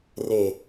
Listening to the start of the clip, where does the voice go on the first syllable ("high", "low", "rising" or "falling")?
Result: low